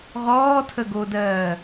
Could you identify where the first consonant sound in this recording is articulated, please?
uvular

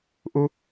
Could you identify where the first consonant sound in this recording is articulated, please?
glottal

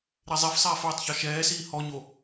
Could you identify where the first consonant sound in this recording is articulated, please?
alveolar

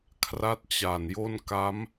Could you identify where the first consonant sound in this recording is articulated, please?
velar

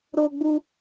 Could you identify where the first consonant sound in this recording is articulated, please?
alveolar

